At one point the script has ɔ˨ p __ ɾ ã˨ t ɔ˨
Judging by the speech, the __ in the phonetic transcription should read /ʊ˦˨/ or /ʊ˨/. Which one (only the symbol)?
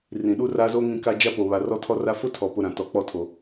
ʊ˨